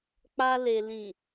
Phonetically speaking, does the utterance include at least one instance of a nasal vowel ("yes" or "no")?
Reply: yes